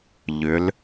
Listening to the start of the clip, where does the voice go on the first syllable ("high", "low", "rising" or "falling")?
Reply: rising